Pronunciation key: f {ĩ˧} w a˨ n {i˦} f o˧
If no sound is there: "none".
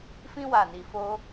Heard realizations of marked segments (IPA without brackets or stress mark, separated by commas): ĩ˧, i˨